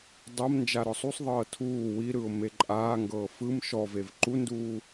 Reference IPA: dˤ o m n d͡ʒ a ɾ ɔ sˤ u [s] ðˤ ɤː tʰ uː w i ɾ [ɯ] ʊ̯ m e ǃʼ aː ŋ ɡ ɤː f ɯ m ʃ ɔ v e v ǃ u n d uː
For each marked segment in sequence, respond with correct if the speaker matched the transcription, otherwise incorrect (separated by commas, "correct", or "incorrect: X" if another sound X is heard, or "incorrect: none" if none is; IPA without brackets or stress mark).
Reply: incorrect: sˤ, correct